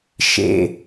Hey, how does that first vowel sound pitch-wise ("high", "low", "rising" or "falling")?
low